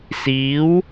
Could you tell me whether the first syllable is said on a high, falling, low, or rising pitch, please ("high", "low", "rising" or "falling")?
rising